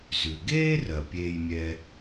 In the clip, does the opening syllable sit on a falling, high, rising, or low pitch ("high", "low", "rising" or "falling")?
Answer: low